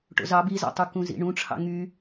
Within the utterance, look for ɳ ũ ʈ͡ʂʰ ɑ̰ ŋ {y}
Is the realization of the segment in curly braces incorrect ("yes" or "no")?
no